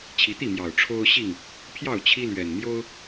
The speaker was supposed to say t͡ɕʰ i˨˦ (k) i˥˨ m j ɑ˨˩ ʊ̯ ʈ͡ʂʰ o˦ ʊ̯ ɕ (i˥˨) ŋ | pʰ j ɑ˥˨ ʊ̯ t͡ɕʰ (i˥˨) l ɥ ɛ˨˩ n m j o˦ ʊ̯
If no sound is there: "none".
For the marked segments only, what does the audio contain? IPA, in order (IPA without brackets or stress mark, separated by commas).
t̪, i˥˨, i˦